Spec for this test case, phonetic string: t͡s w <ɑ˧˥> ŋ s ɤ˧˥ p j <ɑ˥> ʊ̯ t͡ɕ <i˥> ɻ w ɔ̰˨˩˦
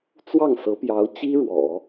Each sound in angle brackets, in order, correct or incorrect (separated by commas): incorrect, incorrect, correct